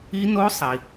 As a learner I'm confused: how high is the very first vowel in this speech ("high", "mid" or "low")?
high